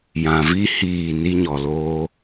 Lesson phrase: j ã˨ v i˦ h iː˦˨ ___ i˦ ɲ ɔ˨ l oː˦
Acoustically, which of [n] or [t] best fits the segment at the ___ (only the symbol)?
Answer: n